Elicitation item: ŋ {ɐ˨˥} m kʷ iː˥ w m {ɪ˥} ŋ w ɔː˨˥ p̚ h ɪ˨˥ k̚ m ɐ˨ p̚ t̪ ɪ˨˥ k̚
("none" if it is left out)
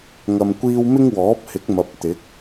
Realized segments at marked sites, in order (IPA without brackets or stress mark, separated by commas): ɐ˧, ɪ˥